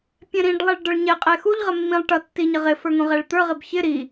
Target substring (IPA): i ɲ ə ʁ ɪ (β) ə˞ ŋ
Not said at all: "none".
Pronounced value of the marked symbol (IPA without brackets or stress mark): f